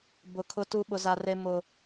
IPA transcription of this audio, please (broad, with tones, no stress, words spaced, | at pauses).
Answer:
bʊ˦ kʰʊ˦tu˦ ɓʊ˦za˦re˦ mʊ˦